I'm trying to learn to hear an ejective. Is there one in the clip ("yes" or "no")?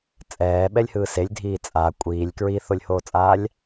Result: yes